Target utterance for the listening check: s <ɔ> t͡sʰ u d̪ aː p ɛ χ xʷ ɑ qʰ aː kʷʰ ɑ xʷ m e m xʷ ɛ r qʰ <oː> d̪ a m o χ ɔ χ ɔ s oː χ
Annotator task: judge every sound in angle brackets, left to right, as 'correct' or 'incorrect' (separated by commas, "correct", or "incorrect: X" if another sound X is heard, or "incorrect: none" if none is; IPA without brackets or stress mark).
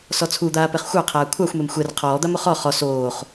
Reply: correct, incorrect: ɔː